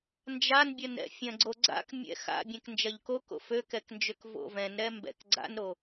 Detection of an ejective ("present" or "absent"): absent